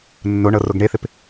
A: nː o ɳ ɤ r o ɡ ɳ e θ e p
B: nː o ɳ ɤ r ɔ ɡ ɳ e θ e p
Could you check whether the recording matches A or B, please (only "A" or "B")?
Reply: A